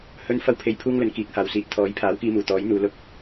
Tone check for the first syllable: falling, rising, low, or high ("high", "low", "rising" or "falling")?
high